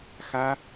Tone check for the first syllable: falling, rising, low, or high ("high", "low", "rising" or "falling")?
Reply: high